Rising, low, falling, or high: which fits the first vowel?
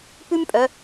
high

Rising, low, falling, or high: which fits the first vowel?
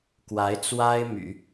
rising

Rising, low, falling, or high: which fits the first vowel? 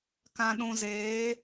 low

